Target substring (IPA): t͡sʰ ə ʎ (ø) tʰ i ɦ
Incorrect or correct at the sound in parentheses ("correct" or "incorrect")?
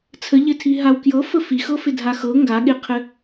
incorrect